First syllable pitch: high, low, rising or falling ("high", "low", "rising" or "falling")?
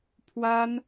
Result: high